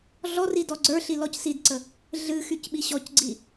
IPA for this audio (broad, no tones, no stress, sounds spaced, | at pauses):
ɮ ɔ r i d ɔ ɡ͡ǀ ə˞ ɬ i l ɔ c s i d ǀ ə | ɮ ɨ x y c ɓ i ɕ ɔ c ɡ͡ǀ i